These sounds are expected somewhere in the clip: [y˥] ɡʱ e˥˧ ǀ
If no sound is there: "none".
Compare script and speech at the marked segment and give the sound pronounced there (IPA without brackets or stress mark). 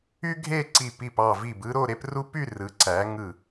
y˥